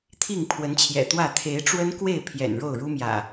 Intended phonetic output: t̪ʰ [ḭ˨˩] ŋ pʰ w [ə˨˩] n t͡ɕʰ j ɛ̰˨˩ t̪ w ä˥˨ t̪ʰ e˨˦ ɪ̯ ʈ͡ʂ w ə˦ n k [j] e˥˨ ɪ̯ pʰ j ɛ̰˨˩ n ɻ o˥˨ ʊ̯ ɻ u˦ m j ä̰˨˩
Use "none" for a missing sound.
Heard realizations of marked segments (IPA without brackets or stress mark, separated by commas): i˥˨, ə˨˦, w